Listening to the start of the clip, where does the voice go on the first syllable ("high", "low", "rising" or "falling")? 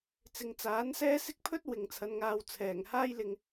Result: low